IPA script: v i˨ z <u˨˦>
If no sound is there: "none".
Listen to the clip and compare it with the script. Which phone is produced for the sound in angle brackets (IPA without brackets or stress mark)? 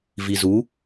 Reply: u˨˦